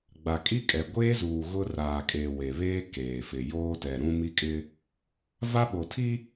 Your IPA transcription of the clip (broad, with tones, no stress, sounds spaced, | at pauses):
ɡ͡b a˨ kʼ i˦ kʼ ɛ˨ ɡʷ eː˦ z uː˨ ɣ ʊ˦ r aː˨ kʼ e˨ w e˨ β eː˦ k eː˨ f ɪ˨ j oː˦ t ɛ˨ ɾ ũ˦ m i˦ kʼ ɪ˦ | v a˦ ɓ o˨ tʰ i˦